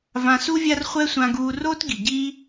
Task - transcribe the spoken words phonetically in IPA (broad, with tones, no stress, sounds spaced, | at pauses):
v ã˧ s u˦ vʲ a˦ r χʷ ɛ˦ sʷ ã˧ ɡ uː˧ r oː˦ t ɡ i˨ ɟ iː˦